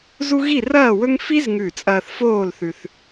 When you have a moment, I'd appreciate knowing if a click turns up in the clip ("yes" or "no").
no